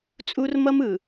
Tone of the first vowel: high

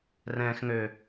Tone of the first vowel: low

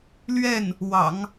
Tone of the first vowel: falling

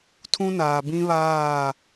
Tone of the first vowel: high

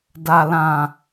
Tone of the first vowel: low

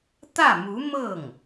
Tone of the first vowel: falling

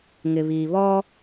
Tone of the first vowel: low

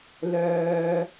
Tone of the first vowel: low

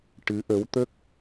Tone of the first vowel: rising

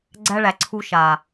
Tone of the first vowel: high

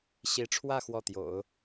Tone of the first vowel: rising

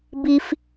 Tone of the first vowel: high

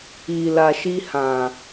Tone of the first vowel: low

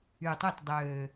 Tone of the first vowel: low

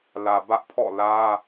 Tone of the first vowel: low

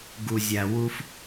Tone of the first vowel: low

